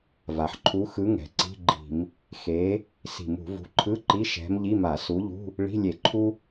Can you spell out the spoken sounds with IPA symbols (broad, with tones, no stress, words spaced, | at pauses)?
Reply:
va˩ħǃʰu˨˥xɯ˨˥ ŋɛ̤˩ǀi̤˧˥˧ɡ͡ǃi̤˧˩˧m | xe˨˥ | si̤˧˩˧mṳ˧˩˧ vṳ˨˥ǃʰɯ˧˥˧ǃi˧˥˧ ʃɛ̤˨˥m ʎi˧˥˧ma˧˩˧su˨˥ʎṳ˧˥˧ | ɭi̤˧˥˧lʲe˧˩˧ ǃʰu˥